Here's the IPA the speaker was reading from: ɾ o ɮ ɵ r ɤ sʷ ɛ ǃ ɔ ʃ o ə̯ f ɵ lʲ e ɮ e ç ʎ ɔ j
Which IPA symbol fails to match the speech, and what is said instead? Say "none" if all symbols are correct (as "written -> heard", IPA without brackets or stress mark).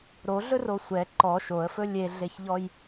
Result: ɤ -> o